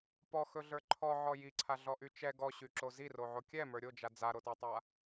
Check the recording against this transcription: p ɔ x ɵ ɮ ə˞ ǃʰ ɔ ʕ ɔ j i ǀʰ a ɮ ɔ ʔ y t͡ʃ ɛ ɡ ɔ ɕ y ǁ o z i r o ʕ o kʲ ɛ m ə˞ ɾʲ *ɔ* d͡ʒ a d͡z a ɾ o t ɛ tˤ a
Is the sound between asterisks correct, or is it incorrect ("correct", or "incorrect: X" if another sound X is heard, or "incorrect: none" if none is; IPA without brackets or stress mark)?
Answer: incorrect: o